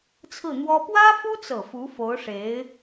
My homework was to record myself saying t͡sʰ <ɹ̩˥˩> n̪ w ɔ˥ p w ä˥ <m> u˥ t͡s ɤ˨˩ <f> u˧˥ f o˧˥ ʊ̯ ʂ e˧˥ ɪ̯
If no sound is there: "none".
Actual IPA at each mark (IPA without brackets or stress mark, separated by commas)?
ɹ̩˥˩, f, f